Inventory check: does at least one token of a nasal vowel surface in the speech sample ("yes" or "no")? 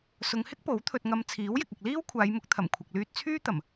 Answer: no